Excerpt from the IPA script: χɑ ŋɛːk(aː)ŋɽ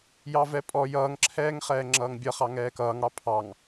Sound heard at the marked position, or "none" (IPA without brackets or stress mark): ʌː